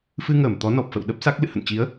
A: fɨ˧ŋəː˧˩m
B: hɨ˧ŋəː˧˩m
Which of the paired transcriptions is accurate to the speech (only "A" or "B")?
A